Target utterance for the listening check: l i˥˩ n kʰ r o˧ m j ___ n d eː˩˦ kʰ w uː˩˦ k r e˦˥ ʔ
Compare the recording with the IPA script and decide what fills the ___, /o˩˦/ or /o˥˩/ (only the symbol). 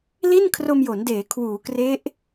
o˩˦